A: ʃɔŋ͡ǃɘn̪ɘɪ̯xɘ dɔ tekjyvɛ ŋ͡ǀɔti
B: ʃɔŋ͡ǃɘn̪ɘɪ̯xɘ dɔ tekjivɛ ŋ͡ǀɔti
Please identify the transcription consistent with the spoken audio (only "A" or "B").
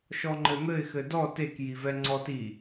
B